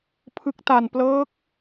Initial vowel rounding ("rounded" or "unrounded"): unrounded